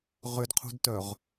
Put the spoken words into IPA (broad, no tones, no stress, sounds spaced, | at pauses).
ʁ ʏ d qʰ ṳ d t œ ʁ